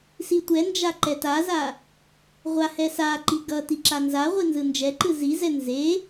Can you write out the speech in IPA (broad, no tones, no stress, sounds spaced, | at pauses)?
s i tʷ ɛ n d͡ʒ a ǃ ɛ t a z a | ʁʷ a h ɛ s a ǃ i ɡ ʌ t i ǁ a n z a ʁʷ i n z ɯ n d͡ʒ ɛ ǃ ɯ z i z ɛ n z e